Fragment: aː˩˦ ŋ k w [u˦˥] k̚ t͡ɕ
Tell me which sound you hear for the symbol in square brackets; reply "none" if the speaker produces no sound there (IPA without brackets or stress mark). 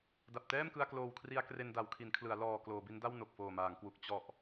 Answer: u˨˩